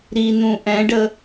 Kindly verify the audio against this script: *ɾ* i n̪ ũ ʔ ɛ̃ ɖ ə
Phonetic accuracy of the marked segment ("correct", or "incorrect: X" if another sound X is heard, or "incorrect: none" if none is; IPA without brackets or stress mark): correct